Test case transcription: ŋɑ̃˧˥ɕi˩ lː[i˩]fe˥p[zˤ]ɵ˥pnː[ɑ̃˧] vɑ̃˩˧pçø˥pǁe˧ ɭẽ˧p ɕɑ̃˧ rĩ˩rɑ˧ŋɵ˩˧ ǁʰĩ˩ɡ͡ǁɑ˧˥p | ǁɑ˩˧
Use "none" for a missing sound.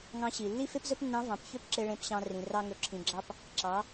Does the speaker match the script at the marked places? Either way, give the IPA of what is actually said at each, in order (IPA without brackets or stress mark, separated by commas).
i˥, z, ɑ̃˧˥